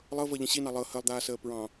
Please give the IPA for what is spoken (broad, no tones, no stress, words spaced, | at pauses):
lˠɤvɤʎə̃ ɕinɑ lˠɤ həlˠd̪aːsəː pɹɑ̃